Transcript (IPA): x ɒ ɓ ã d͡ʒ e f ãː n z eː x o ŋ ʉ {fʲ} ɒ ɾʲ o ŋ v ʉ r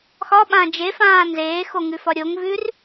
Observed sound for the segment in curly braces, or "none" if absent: f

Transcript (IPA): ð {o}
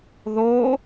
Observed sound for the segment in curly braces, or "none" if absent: o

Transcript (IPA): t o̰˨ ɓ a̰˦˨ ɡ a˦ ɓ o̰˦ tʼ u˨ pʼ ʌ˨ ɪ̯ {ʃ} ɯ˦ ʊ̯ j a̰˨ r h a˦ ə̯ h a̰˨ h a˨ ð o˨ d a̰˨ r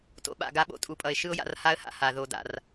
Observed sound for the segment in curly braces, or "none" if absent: ʃ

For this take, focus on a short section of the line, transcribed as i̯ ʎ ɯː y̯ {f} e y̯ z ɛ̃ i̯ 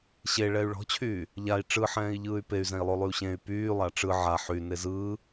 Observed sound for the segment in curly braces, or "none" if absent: p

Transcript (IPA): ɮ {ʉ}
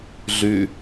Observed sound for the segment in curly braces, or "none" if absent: ʉ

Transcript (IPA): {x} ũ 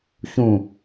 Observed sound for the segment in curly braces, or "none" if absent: ç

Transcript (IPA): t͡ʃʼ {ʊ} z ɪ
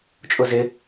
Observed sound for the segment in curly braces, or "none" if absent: ʊ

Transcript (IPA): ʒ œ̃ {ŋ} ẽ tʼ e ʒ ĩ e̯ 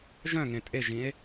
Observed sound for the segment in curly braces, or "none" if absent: ŋ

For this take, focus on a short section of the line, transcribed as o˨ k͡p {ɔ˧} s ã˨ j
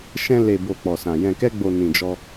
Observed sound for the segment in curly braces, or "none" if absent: ɔ˨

